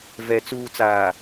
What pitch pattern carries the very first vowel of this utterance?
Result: low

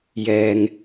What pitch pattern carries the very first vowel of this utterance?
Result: low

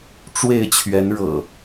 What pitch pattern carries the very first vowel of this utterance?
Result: falling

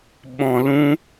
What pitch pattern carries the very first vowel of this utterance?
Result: low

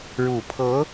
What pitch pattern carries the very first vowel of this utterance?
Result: low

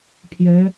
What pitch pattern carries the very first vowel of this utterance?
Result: rising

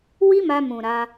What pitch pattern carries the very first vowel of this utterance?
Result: high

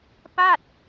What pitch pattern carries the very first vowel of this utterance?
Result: falling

